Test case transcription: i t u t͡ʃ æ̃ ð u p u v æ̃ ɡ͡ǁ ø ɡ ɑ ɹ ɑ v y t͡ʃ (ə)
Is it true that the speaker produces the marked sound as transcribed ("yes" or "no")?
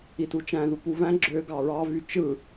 no